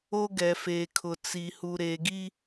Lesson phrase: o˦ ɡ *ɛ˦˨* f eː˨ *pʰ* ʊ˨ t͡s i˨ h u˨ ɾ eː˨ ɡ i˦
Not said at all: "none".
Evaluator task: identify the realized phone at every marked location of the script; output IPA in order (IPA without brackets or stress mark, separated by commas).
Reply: ɛ˨, kʰ